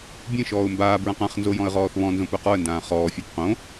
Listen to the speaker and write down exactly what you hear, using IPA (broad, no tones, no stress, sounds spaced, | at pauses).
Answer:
bʲ ẽ ʃ ɔː ʊ̯ m b aː b ɹ ã q ã χ n z o j ɔ̃ ə̯ ʁ ɔː θ β ɔ̃ n z õ p œ q ɔ ə̯ n d ãː χ ɔː fʲ a p q õ